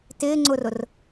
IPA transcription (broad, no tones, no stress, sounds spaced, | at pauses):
t ɪː ŋ͡ǀ ʊ r ʊ r